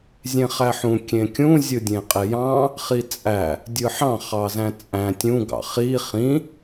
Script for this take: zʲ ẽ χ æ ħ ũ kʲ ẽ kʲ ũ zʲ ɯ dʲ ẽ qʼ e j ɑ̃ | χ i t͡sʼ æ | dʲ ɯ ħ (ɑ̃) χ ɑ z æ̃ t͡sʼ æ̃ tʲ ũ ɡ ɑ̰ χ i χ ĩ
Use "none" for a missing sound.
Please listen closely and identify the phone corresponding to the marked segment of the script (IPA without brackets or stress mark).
ɑ̃